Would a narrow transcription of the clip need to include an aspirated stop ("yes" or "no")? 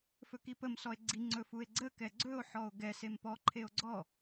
yes